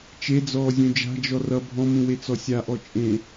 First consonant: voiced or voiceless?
voiceless